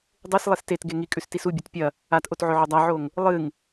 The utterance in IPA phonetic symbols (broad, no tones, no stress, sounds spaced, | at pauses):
dˤ e s lˠ e s t e t ɡ e ŋ i kʼ ʉ s t i s u bʲ ɐ t pʲ ɐ | a t ʔ o t ʕ ɵ ʕ o dˤ a ʕ o ŋ | lˠ ɨ ŋ